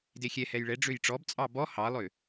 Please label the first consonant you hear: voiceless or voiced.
voiced